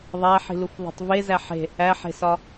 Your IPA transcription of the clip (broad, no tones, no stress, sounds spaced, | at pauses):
ðˤ æ ħ i̤ l u f ðˤ o̤ tˤ v e z æ ħ e̤ | æ ħ e̤ s ɒ